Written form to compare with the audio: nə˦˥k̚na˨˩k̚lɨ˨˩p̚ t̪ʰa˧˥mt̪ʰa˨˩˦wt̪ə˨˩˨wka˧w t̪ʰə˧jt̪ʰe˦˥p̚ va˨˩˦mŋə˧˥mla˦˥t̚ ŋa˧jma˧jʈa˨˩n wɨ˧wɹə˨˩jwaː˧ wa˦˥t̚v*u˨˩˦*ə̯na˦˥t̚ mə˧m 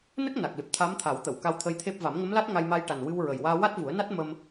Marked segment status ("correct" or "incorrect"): correct